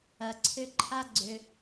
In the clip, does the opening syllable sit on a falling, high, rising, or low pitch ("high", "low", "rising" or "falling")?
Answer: low